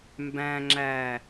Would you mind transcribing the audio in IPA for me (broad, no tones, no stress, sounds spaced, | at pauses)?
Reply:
m b æ̃ ŋ͡ǁ æ